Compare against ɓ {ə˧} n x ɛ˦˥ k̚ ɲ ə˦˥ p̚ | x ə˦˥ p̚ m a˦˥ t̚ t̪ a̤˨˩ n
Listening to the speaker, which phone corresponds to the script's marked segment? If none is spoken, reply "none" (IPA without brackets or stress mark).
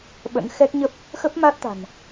ə̰˧˥